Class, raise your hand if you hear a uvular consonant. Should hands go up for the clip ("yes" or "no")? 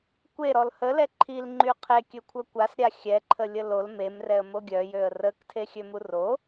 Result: yes